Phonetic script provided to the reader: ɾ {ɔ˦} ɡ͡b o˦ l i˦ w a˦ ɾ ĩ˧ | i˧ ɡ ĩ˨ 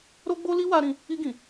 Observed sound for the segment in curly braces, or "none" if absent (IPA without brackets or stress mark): o˦